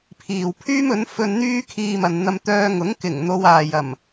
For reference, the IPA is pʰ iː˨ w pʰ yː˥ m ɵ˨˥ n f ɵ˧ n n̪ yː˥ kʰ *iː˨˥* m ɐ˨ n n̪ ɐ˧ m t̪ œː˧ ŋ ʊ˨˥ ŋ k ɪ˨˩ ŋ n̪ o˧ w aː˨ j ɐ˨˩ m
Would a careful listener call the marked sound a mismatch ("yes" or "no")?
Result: yes